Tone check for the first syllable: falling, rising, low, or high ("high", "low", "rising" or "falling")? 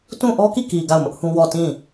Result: falling